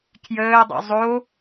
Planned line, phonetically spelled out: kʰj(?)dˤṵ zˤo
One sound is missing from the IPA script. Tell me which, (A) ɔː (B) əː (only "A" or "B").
B